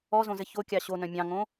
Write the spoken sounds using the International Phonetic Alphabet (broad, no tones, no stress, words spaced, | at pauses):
ɔzõzɘ çokʲɑ ɕonœ̃ mʲɑ̃ŋõ